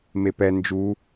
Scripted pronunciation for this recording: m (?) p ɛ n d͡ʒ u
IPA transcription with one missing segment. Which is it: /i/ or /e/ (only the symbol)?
e